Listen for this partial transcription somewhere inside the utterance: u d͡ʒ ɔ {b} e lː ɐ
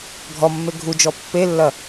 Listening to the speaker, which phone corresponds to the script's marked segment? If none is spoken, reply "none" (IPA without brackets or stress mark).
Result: pː